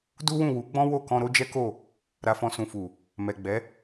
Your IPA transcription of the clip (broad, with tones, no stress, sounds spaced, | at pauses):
d u˦ w ũ˦˨ w u˨˦ ɡ͡b ɔ̃˦ w o˦˨ k ɔ̃˧ ɾ o˦ d͡ʒ ɛ˦ k o˦˨ | ɾ a˧ f ɔ̃˧ s ũ˨ f u˨ | m ɛ˨ ɡ͡b ɛ˨˦